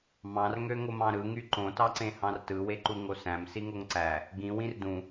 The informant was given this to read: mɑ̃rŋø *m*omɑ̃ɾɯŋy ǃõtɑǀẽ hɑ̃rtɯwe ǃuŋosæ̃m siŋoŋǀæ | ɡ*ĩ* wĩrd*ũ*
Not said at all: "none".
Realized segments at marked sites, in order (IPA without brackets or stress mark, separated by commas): ŋ, ĩ, ũ